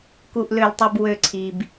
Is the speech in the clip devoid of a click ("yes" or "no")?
no